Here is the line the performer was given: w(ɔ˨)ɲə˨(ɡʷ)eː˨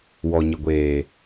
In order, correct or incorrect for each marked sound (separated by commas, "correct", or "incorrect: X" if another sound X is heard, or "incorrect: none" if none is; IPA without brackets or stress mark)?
correct, correct